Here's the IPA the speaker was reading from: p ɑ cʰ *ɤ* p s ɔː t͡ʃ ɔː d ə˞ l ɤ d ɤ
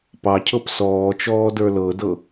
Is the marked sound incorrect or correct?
correct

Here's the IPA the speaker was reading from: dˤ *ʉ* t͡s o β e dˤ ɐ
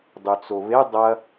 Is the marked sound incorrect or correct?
correct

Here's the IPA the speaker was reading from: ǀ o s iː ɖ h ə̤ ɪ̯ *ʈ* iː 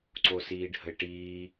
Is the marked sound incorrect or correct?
correct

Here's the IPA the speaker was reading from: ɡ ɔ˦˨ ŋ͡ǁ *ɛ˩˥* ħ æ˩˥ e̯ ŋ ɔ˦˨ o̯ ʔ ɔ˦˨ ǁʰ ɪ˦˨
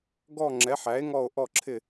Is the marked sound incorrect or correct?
correct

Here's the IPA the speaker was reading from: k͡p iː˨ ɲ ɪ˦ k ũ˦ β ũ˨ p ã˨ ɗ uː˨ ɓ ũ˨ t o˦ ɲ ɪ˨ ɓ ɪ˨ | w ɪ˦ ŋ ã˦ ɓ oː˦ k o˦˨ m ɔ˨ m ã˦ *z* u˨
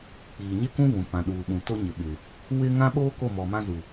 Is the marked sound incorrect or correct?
correct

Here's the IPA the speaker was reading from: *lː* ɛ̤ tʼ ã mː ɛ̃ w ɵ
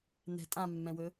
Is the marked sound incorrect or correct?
incorrect: n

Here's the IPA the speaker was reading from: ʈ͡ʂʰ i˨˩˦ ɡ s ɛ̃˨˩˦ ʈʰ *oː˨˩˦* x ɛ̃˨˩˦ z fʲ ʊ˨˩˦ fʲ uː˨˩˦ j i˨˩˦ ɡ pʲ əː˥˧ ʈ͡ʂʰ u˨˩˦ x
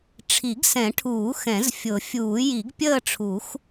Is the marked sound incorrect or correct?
incorrect: uː˨˩˦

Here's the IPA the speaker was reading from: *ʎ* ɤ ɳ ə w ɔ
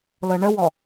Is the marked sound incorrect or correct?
incorrect: l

